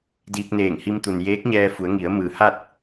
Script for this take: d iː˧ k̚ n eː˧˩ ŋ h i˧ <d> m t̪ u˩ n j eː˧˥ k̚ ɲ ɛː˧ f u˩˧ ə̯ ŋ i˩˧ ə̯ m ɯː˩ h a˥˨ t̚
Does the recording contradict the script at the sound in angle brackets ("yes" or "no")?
yes